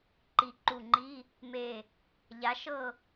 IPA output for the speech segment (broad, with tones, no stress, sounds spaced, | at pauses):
ǃ i˧˩ ǃ u˧˩ ŋ͡ǃ i˧˥˧ | m e˧˩ | ʎ a˨˥ ʃ ɤ˥˨